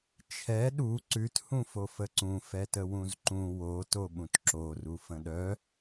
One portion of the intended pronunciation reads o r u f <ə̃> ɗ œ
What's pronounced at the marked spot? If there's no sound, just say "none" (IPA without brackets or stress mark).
ə̃